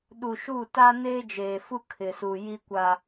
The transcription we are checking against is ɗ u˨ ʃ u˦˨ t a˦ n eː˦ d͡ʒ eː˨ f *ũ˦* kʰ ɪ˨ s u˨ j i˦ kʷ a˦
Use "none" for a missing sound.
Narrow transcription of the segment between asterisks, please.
u˦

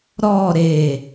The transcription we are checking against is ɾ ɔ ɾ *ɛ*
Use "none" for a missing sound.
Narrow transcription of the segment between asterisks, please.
e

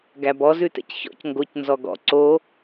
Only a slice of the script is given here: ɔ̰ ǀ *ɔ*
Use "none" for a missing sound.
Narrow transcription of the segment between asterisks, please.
o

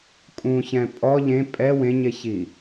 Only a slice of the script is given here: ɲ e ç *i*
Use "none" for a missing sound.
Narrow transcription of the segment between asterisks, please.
i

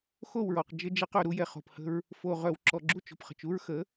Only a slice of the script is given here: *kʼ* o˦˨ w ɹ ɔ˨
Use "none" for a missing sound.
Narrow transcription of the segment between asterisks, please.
x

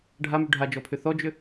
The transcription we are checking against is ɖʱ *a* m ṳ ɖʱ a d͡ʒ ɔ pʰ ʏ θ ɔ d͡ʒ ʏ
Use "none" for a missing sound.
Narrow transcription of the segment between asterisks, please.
a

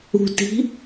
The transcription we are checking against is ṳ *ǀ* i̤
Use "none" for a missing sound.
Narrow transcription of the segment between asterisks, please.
t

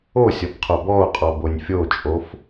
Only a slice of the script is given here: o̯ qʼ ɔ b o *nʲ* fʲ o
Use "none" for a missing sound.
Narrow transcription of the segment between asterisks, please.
nʲ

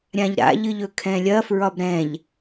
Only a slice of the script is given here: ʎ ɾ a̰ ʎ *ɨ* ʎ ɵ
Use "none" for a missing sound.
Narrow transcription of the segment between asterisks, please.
ɨ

